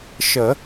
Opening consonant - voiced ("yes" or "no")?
no